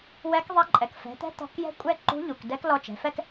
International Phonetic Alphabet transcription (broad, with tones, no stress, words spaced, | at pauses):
wɛ˧˥kðˤɛ˧˥ ǃʼɛ˩kfɛ̤˩˧t̪ɛ̤˧˥ t̪ɔ̤˧kjɛ̤˥ kʷʼɛ˥ǃṳ˧˥ʎu˩k dɛ˧˥klɔ˧t͡ʃɛ̤˩˧fɛ˥k